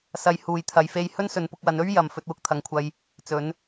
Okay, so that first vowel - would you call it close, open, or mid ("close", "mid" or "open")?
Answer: open